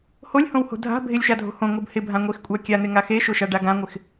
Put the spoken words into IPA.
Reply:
h o lʲ h õ w h o̤ dʱ a̤ bʱ ɪ lʲ ʃ a dʱ o̤ h õ ŋ o b h ɪ bʱ ã ŋʷ e x kʷʼ a kʲ a n̪ ɪ ŋ a x e ʃ o ʃ a ɖ a ɡ ã ŋʷ ɪ x

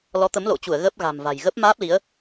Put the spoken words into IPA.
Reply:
l ɔ˨˦ t̪ ə˨˦ m l o̰˧˨ t͡ɕ u˧˩ ə̯ ɣ ə˦˥ p̚ ɣ a̤˨˩ m v a̤˨˩ j ɣ ə˦˥ p̚ m aː˦˥ p̚ l i˨˦ ə̯

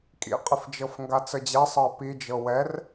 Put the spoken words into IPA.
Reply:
kʼ ḭ qʼ ɪ f d͡ʒ ɤ f ŋ ɡ a t͡s ə d͡ʑ ɛ sˤ ɤ ə̯ p i d͡ʒ ɤ w ɛ r

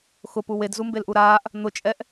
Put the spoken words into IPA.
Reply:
x ʊ p u w e d z u m b e l ʔ u ɾ aː ʔ | n̪ ʊ t͡ʃʼ ɛ ʔ

